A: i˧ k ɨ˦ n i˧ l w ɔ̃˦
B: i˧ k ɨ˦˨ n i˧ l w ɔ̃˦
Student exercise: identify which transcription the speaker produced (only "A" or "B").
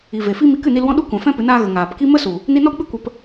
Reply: B